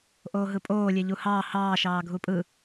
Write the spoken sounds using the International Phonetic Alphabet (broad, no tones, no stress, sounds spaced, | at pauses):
ʔ oː ɦ ɯ pʼ oː lʲ e ʎ u h ɑː h ɑː ʃ ɑː ɡʱ u pʼ ɯ